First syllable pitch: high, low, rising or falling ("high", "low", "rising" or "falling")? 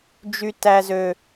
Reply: low